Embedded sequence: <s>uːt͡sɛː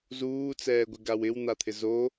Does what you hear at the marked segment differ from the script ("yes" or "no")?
yes